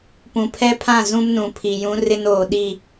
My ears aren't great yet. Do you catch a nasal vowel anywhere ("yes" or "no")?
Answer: yes